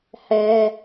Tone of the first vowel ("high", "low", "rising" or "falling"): high